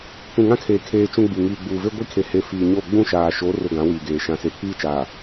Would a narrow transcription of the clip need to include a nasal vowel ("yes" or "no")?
yes